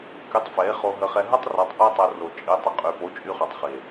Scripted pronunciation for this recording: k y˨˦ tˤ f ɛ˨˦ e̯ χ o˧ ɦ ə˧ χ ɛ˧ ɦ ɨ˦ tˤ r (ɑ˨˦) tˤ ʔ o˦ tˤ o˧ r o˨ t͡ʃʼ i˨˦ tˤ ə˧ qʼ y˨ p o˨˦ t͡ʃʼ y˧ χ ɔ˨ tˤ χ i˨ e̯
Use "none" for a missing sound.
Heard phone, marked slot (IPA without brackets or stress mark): ɑ˨˦